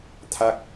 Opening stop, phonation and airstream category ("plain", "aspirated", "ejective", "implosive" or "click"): aspirated